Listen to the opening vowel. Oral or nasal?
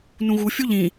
nasal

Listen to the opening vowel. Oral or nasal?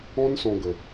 nasal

